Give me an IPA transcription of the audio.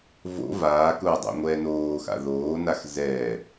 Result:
v o̰ v aː k ʊː dˤ o̰ ŋʷ ɛː n oː x a̰ ð oː n a x z ɛ

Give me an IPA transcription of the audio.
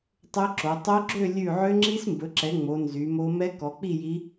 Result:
tˤ ø˦˥ ǁ o˨˦ tˤ o˦˥ ɡ͡ǁ ø˥˧ lʲ ʉ˥˧ ʕ ø˦˥ ŋ͡ǁ i˦˥ s m b ɵ˨˦ ǁ ɛ˨˦ ŋ͡m o˨˦ n z y˨˦ m o˦˥ m ɛ˦˥ k ɔ˨˦ k͡p i˥˧ j i˦˥

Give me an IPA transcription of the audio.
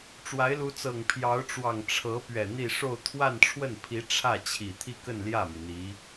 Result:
ʈ͡ʂ w a˧˥ ɪ̯ l u˧˥ t͡s ɤ˨˩ ŋ pʰ j ɑ˧˥ ʊ̯ ʈ͡ʂ w ɑ˨˩ ŋ ʈ͡ʂʰ ɤ˧˥ p ɥ ɛ˨˩ n̪ i˥˧ ʂ o˥˧ ʊ̯ t̪ʰ w a˥˧ n ʈ͡ʂʰ w ə˥˩ n pʰ i˧˥ ʈ͡ʂʰ ä˥˩ t͡ɕʰ i˨˩ t̪ʰ i˥˧ k ə˥˧ n l j ä˥˩ m i˩ n̪ i˧˥

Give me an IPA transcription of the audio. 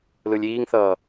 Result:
l ɯ lʲ iː ŋ θ ʌː

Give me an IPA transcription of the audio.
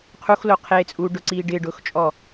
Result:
qʰ u x l o qʰ eː t͡sʼ uː ɖ ʊ ǀ iː ɖ ɪː ɖ ʊː x t͡ʃʼ ɔ

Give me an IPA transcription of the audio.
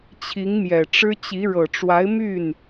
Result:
t͡ɕʰ i˧˥ ŋ m j ɛ˨˩ ʈ͡ʂ ɻ̩˥ t͡ɕ i˧˥ ɻ ɤ˨˩ ʈ͡ʂ w a˧˥ ɪ̯ m y˥˩ n

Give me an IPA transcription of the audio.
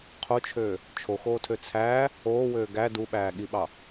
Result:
qʰ o t͡ʃʰ øː | t͡ʃʰ o x oː tʰ ø t͡sʰ æː | oː w øː ɡ æ d u ɓ æː ɠ i ɓ ɑ

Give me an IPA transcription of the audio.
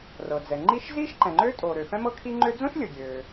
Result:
r ɤ˩ d͡z ɛ˩ ŋ͡ǃ i˥ ʃ z iː˥ ʃ ǃ ɛ̃˩ ŋ͡ǃ øː˥ tʼ oː˩ ɾ ø˩ f ɛ̃˥ m ɤ˥ kʰ i˥ ŋ͡ǃ ø˥ d͡z õ˥ ʃ lʲ ɤ˩ ɡʲ øː˩

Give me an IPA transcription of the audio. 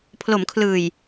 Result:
pʰ l o˩˦ m kʰ l ɯː˨˩ j

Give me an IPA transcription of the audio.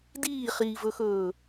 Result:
d iː χ iː v ɵ x ɵː

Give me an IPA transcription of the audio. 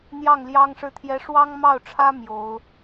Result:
n̪ j ɑ˥˩ ŋ l j ɑ˥ ŋ ʂ ɻ̩˥˩ t̪ʰ j ɛ˥ ʂ w ɑ˥ ŋ m ɑ˥˩ ʊ̯ ʈ͡ʂʰ ä˥ m j o˧˥ ʊ̯

